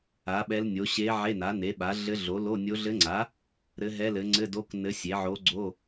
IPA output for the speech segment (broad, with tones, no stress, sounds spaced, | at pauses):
a˩˥ ɓ ɛ˧˥ l nʲ o˩˥ ɕ e˧˥ ʕ e˧˥˧ n a˩˥ n e˩˥ ɓ a˩˥ ɮ ɘ˧˥ ɮ o˩˥ l o˧˥˧ nʲ o˧˥ ɮ ɘ˧˥ ŋ͡ǀ a˩˥ | ɾ ɘ˧˥ ɦ ɛ˧˥˧ l ɘ˩˥ ŋ͡ǀ ɘ˧˥˧ d o˧˥˧ k n ɘ˧˥ sʲ e˩˥ ʕ o˧˥ ɡ͡ǀ o˧˥˧